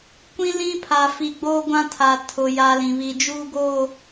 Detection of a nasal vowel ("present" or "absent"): present